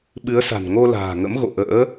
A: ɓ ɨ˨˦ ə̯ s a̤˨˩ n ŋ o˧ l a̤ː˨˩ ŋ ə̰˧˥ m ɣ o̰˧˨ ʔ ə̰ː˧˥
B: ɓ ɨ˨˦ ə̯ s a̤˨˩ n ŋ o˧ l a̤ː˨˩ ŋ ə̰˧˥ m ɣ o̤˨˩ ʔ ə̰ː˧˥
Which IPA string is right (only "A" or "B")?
A